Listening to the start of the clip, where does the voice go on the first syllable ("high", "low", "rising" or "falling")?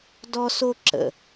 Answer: high